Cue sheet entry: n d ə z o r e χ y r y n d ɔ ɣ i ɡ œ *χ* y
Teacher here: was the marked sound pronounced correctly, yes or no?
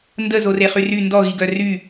no